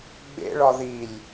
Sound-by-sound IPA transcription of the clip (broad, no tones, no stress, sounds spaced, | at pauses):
ɡ͡b ḛ ɭ ɒ ð i lʲ